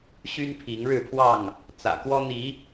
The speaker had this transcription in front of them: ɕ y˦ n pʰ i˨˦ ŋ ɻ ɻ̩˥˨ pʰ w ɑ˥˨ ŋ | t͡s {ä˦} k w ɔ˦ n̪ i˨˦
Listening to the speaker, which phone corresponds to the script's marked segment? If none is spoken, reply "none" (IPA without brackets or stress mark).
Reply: ä̰˨˩